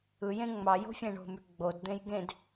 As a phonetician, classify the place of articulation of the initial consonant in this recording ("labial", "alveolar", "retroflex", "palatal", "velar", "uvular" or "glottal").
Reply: palatal